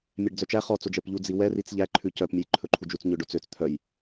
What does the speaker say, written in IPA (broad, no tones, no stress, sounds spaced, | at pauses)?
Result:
mʲ æ ɖ d͡z œ t͡ʃ æ χ ɔ t͡s o d͡ʒ ɛ p ʎ u d͡z i w ɛ r i t͡s ʎ æ ǃʰ ʉ c œ p mʲ ɵ j ǃʰ ɵ ǃʰ u d͡ʒ u t͡s ɲ ɵ ɖ o t͡s ø t͡s t̪ʰ œ j